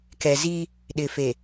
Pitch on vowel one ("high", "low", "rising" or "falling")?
low